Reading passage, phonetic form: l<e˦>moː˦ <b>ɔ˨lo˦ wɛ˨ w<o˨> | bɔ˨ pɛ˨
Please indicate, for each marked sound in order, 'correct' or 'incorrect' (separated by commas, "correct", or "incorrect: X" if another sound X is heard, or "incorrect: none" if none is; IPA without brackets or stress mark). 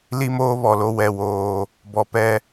incorrect: i˦, incorrect: β, incorrect: oː˨